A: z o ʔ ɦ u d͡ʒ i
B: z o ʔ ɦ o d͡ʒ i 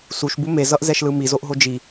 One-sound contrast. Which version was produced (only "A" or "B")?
B